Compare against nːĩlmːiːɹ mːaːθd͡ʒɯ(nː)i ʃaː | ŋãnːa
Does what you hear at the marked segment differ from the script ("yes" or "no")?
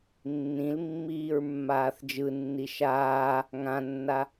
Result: no